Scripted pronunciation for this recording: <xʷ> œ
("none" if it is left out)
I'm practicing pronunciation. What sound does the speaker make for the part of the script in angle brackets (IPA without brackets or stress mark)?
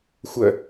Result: xʷ